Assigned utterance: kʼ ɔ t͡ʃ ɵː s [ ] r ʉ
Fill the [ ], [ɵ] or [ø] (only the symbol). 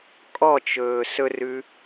ɵ